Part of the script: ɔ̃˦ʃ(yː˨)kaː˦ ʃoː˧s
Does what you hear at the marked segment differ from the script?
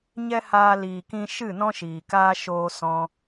yes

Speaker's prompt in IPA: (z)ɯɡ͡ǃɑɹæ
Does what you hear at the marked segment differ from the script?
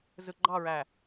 no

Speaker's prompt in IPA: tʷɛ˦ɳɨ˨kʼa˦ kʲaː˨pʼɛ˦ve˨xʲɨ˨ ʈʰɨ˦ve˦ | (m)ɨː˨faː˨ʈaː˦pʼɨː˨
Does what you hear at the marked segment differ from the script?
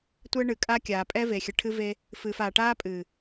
yes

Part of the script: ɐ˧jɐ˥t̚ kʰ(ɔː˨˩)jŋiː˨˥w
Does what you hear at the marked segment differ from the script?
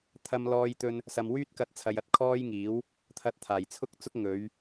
yes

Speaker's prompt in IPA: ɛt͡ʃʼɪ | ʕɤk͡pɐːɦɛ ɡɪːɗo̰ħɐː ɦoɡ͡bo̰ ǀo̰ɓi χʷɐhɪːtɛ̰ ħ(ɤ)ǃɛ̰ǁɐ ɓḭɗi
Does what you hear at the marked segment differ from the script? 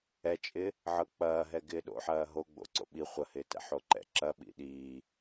yes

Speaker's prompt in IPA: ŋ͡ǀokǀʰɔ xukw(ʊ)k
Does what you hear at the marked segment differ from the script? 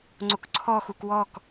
yes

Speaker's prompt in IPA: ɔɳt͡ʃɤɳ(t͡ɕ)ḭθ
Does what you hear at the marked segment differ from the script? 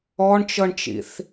yes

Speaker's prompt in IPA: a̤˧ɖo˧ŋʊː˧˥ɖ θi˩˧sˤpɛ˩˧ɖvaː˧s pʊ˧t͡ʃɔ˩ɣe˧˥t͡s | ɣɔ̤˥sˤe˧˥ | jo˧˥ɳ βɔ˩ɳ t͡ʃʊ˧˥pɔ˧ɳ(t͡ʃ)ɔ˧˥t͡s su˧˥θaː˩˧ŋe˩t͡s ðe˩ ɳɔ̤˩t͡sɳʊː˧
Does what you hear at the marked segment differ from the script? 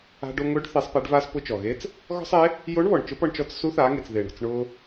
no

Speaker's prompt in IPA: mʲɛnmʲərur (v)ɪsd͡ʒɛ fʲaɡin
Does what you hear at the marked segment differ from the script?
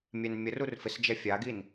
yes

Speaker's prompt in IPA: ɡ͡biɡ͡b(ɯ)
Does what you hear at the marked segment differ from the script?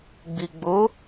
yes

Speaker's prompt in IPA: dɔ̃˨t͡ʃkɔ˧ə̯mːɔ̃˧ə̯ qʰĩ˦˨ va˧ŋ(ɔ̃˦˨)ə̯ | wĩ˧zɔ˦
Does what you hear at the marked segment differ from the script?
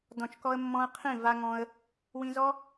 yes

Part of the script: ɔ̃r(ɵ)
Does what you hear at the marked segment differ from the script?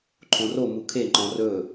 no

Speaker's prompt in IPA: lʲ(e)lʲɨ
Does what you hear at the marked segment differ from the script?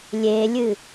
no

